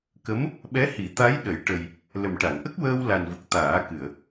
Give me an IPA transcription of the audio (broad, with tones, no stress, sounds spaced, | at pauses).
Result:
k ə˧˥ m | ɓ ɛ˧˥ h i˨˩˦ t̪ a˧˥ j ɗ ə˨˩˦ j ʈ ə˨˩ j | l ə˨˩ m ʈ a˨˩˨ ŋ ʔ ə˦˥ k̚ w əː˧ w l a˨˩ n v ə˨˩ k̚ t̪ aː˨˩˦ k ɨ˨˩˨ ə̯